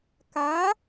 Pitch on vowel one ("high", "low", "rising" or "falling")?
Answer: rising